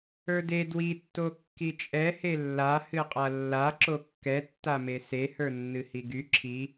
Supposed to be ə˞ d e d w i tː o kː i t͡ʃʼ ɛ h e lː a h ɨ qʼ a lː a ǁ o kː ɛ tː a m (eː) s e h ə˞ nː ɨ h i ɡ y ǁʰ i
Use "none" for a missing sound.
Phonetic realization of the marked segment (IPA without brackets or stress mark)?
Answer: e